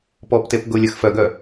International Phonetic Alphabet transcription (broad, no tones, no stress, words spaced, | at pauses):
pɔptep ɡʊlʲəx fœɡœ